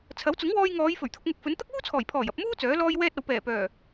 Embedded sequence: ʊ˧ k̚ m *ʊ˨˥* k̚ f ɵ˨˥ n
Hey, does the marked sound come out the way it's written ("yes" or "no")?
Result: no